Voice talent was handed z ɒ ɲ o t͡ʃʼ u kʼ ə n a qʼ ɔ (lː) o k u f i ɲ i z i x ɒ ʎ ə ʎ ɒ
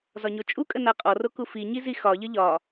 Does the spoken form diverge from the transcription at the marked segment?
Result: yes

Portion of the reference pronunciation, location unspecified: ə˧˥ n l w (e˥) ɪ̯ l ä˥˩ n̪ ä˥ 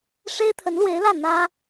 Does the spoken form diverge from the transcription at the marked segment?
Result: yes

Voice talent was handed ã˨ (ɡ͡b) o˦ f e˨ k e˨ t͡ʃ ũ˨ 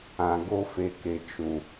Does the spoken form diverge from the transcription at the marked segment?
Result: yes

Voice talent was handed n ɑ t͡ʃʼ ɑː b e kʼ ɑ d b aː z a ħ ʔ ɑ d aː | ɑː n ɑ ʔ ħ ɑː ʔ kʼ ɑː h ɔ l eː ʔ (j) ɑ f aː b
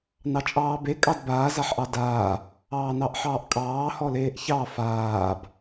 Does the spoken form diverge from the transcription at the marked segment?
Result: yes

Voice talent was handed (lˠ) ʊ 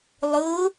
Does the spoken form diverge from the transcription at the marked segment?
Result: no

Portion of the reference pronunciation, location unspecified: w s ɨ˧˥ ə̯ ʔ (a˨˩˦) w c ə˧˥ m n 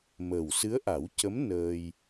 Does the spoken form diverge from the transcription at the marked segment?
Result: no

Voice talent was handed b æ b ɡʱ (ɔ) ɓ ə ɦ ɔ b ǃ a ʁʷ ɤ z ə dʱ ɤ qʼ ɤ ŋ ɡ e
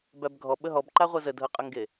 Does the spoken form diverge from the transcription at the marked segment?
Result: no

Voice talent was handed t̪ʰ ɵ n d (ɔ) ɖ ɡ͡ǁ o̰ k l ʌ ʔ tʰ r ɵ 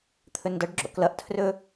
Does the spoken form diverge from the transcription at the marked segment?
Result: yes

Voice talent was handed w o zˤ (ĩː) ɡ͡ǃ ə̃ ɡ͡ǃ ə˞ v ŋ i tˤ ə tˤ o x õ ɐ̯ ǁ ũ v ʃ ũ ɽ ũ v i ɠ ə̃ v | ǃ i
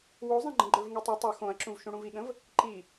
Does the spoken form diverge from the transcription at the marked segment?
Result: yes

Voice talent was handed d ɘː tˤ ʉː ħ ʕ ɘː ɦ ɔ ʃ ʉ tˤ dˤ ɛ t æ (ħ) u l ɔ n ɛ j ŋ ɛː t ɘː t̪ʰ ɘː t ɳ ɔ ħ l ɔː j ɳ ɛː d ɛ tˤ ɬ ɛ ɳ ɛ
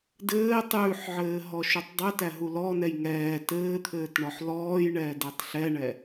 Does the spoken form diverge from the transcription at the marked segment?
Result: yes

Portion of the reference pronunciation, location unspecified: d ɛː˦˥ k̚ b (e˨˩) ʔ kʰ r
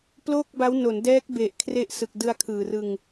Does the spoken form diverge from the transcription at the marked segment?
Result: no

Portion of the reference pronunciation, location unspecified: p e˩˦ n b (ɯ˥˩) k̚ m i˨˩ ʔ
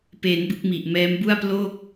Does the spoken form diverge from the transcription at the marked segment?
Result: yes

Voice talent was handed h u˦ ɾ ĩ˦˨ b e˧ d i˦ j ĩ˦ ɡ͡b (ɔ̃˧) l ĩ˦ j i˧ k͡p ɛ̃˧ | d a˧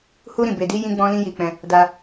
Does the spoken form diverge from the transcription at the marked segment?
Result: yes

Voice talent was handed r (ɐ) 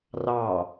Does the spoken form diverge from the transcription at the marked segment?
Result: yes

